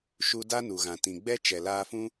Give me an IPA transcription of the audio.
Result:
ʃu˧da˦nu˨ɣã˨ tĩ˨ɡ͡bɛ˦ t͡ʃɛ˨laː˧fũ˦

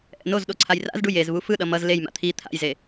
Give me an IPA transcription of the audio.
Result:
ʔɛ̰nozɗo ǀʰajra̰zɖu jez βufɯɗʌ mʌz lejma̰ t̪ʰi t̪ʰa̰jze

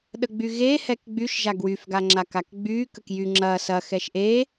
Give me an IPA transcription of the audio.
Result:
ɗəɡ͡byɣehɛk ɡ͡byʃʒa ɡwyfɡaŋ͡ǁakak ɡ͡by kəkjy ŋ͡ǁɐ sɐ xɛʃʔe

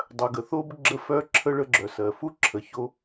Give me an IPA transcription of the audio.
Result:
dˤœ˩ɡə˩θo˧b ɡ͡ǁə˧fœ˧ǁʰə˧ ɭə˧ɡ͡ǁœ˩sɜ˩fu˥ ǁʰə˩ço˧

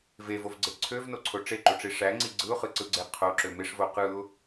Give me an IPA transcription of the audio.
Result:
vevovɡ͡ǀe ǀʰøvnoǀʰo ʈ͡ʂeǃoʈ͡ʂi ʂæŋ͡ǀi ɡ͡ǀɯʊ̯χɯǀɯɡ͡ǀe qʰoǁø meʂvo qɯʊ̯

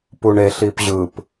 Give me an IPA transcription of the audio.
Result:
puɳeɬ ipʑɯp

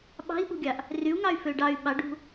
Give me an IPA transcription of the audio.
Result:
ɓɑ̤i̯ɓṳɡʲɑʔ | ryu̯ŋɑy̯fø ɖɑy̯ ɓɑɖṳ

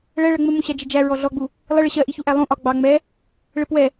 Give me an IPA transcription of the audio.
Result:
ɭɛɭɜ ŋ͡mə mũɕæd͡ʒɪd͡ʒæ ɹɔɮɔɡ͡bu | lˠɪɭɪ ɕɜʔiçuʔæ lˠũ ʔɒ ɡ͡bɑ ŋ͡mɛ | ɭɪpwɛ

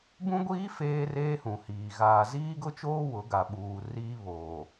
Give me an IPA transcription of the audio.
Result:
bũ˦ɡʷiː˦ feː˦reː˦hũ˨hiː˨ ɣaː˨ziː˦ɡʊ˦t͡ʃoː˦ wʊ˨˦ɡa˨ɓuː˨ riː˦βoː˨

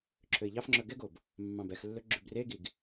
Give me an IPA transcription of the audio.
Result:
ǁʰøi̯ʎɑfŋ͡ǁœ ɡɛɡob | mːɑ̃bɛxlːɵ ɡ͡ǁʉbreɡiɡ

